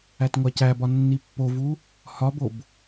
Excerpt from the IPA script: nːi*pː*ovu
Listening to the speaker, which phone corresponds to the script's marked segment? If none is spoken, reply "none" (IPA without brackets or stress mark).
pː